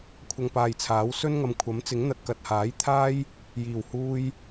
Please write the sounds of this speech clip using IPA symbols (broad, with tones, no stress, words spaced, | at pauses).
kʷʰɐ˧ŋpaː˨jt͡sʰaː˨˥w sɵ˥nŋɐ˨mkʷʰɐ˨˥mt͡sɪ˨˥ŋ n̪ɐ˨˥t̚kɐ˨t̚haː˨˥jt̪ʰaː˥j | jiː˨˩w huː˧j